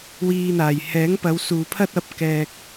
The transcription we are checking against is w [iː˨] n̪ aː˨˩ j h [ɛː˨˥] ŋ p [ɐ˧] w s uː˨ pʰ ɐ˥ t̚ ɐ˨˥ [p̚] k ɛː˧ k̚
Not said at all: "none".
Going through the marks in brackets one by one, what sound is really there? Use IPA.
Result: iː˨, ɛː˨˥, ɐ˨˧, p̚

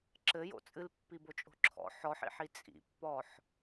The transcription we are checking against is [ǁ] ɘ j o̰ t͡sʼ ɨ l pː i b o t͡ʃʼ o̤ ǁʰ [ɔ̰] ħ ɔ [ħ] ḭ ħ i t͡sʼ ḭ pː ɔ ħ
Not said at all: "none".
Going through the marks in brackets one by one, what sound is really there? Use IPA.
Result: ǁ, ɔ̰, ħ

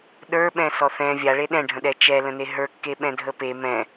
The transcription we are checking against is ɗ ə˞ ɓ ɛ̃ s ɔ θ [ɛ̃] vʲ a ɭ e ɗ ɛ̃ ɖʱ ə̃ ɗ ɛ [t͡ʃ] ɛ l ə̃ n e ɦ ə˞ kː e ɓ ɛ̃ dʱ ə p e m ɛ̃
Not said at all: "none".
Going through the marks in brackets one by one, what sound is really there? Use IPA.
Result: ɛ̃, t͡ʃ

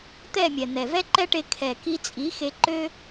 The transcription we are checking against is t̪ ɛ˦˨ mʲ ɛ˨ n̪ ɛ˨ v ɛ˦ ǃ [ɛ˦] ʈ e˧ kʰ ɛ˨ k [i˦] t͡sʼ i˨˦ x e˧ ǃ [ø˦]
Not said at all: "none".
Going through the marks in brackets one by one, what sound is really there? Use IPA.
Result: ɛ˦, i˧, ø˦

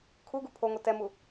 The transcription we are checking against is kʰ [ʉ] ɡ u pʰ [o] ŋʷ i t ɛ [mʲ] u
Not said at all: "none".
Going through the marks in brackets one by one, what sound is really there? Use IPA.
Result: u, o, m

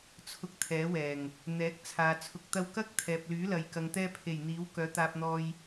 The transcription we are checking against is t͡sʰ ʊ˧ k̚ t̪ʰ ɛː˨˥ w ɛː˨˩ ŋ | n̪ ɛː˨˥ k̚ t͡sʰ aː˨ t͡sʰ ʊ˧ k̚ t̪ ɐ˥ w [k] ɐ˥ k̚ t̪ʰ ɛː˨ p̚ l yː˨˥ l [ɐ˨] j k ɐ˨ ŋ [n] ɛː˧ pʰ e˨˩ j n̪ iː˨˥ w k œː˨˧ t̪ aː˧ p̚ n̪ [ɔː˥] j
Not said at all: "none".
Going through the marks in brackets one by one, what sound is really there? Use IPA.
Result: k, ɐ˨, t̪, ɔː˧

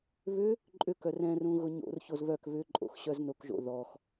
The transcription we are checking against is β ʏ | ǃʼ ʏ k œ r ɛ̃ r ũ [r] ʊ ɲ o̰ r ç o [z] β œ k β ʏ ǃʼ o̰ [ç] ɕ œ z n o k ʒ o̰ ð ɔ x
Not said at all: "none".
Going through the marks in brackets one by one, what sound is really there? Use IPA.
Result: ɣ, z, x

